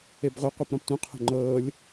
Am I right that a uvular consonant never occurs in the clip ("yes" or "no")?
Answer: no